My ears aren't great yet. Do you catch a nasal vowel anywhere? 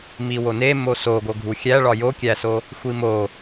no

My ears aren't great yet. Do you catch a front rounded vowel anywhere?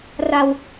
no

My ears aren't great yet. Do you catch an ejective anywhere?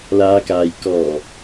no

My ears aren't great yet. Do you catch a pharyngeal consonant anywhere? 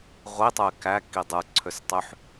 yes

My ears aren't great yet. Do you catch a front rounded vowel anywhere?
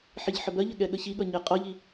no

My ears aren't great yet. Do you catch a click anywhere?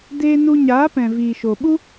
no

